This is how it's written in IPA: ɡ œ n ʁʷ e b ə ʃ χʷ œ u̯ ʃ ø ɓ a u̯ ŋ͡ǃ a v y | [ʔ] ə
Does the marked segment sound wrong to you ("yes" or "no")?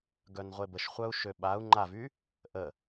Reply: no